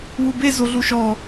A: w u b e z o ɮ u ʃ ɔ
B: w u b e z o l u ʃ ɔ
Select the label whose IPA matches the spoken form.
A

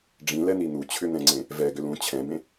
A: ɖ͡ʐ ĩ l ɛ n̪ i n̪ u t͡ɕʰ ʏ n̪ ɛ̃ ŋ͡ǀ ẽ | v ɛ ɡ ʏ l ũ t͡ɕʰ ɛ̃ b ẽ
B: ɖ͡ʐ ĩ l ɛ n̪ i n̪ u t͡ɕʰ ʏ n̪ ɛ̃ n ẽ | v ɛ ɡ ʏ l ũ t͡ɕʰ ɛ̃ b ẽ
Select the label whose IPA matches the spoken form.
A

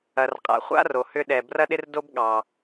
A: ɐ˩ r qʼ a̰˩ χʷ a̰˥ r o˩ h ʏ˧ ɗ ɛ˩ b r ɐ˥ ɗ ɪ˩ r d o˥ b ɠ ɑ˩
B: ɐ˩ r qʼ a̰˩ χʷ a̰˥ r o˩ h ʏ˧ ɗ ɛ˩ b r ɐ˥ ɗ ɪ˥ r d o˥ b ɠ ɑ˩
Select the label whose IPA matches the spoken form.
B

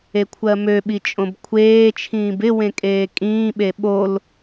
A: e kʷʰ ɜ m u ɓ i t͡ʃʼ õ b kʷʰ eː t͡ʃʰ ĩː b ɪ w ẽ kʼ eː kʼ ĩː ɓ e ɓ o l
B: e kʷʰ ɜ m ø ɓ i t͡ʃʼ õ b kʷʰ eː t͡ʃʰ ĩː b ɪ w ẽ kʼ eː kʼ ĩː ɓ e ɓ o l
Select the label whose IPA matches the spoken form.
B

